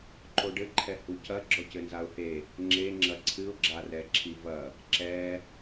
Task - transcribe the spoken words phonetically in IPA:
ǃ o ɖ ɘ ǃʰ ɛ h u c ɐ ɡ͡ǁ ɔ c ɘ n z a ʊ̯ h e | ŋ͡ǁ e ŋ͡ǁ ɐ ǀʰ ɨ ʊ̯ ɡ͡ǁ a r ɛ ǁʰ i v ɐ | ǁ ɛ

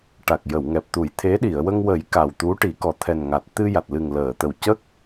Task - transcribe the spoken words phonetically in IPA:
ʈ a˨˩ k̚ j ə˨˩˨ w ŋ ɛ˨˩ p̚ t̪ u˨˩˦ j t̪ʰ e˧˥ ɗ i˨˩˨ ə̯ w ə˧ ŋ w ə˨˩˦ j k a˨˩ w t̪ u˧˥ ʈ i˨˩˦ k ɔ˨˩ t̪ʰ ɛ˨˩ n ŋ a˨˩ t̚ t̪ ɨ˧ j a˨˩ t̚ l ɨ˨˩ ŋ l əː˨˩˨ t̪ ə˨˩ w c ə˦˥ k̚

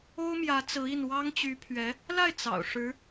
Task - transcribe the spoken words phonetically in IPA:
o˥ ʊ̯ m j ä˧˥ t͡s ɹ̩˧˥ i˥˩ n w ɑ˥ ŋ t͡ɕ y˧˥ pʰ ɥ ɛ˧˥ | l a˥˩ ɪ̯ t͡s ɑ̰˨˩ ʊ̯ ʂ ɻ̩˧˥

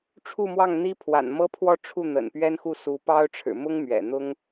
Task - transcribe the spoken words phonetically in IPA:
ʈ͡ʂʰ u˥˧ m w ɑ˥˩ ŋ n̪ i˥ pʰ w a̰˨˩ n m ɤ˥ pʰ w ɔ˥˧ ʈ͡ʂʰ u˥˩ n̪ ə̰˨˩ n p ɥ ɛ˥ n x u˥˩ s u˧˥ p ɑ˥ ʊ̯ ʈ͡ʂʰ ɻ̩˨˩ m ʊ˥ ŋ m ɥ ɛ̰˨˩ n̪ ʊ˥ ŋ

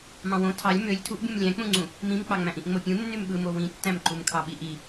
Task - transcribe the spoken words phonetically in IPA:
m ɑ̃ w õ tʰ ɑ lʲ m ø lʲ tʰ u ʔ bʲ ũ m lʲ æ̃ k͡p ũ ŋ͡ǀ ũ | m ĩ m k͡p ɑ ŋ͡m æ̃ ʔ ĩ ʔ ŋ͡m o pʲ ũ nː y m ɓ ɯ m o w ĩ tː æ̃ m ǃ u m kʰ ɑ ɓ i ʔ i

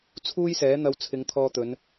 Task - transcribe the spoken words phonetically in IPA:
t͡sʰ uː˥ j s ɛː˨˥ n̪ ɐ˧ w t͡sʰ ɪ˨˧ ŋ t̪ʰ ɔː˧ t̪ ɵ˨˧ n

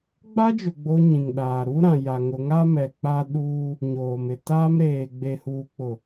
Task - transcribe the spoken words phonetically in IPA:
ɡ͡b a˦ d͡ʒ ʊ˨ ɡ͡b o˦ ɲ ĩ˨ ŋ ɗ aː˨ ɾ u˦ ɾ ã˨ j a˨ ŋ ʊ˨˦ ŋ a˦ m ɛ˨ k͡p a˦ ɗ uː˦ | ɲ oː˨ m ɪ˨ t aː˦ m ɾ eː˨ ɡ͡b e˨ h uː˨ k͡p ʊ˨

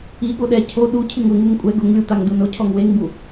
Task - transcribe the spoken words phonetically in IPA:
i ɠ o ɗ ɛ cʰ o ɗ u cʰ ɪ ŋ ʊ ŋ u ŋ kʷʼ ɛ ɡ ʊ ŋ lʲ u t̪ a ŋ d u n ʊ cʰ ɔ ŋ w e ŋ b u

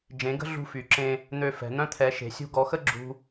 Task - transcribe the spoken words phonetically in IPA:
d͡ʒ ẽ˧˥ ɡ ə̤˥ ɮ ṳ˥ f y˧˥ ǁ ẽ˥ | n̪ ø˥ f ɛ̤˧˥ n̪ œ̃˥ t̪ʰ ɛ˧˥ ʃ e̤˧˥ sʲ ṳ˥ ɡ ɔ˧˥ x ə˥ ɡ͡ǁ ṳ˥

